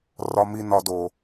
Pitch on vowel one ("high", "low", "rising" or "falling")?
low